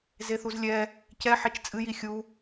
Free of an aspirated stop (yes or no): yes